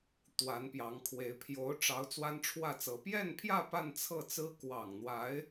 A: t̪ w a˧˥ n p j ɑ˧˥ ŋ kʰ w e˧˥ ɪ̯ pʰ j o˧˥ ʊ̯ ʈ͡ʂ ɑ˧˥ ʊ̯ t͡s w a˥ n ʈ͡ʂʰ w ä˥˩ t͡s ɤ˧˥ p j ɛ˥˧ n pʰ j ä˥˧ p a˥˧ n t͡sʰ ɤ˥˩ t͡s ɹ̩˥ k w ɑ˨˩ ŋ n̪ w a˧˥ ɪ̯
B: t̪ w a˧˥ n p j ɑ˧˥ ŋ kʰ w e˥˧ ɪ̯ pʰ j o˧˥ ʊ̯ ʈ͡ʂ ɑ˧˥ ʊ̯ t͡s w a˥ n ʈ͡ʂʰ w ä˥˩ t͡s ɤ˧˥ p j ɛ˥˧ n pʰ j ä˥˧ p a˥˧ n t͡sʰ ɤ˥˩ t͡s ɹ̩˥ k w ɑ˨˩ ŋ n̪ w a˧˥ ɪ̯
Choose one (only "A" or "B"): A